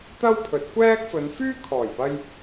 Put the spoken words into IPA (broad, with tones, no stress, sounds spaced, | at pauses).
t̪ ɐ˥ w pʰ ɵ˨˥ t̚ kʷ ɛː˥ k̚ f ɵ˨˧ n f yː˥ kʰ ɔː˨˩ j p ɐ˧ j